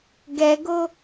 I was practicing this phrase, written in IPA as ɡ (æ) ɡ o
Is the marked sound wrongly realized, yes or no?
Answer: yes